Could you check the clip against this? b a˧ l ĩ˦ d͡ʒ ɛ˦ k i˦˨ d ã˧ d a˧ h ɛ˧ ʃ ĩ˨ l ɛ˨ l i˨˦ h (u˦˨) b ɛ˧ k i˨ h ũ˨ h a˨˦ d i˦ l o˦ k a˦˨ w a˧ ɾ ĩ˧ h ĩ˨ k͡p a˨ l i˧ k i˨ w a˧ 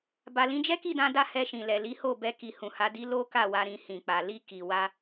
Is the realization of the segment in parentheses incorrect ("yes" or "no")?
yes